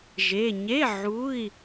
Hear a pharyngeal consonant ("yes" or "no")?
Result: yes